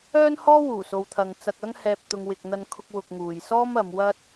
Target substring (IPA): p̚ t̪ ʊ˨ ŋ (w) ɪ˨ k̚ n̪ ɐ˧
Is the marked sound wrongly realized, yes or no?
no